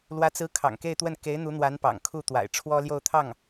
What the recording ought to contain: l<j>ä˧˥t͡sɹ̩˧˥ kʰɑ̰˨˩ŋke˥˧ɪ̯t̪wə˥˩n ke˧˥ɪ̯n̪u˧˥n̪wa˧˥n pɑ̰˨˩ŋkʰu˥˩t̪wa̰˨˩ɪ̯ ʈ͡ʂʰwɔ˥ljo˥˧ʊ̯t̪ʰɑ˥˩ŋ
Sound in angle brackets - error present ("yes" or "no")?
yes